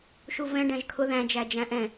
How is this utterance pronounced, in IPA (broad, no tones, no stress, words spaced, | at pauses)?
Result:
ʃuvɛ̃ ɖæ̃ʒkʰʊ ðæ̃ d͡ʒæd͡ʒæ̃ʔɛ̃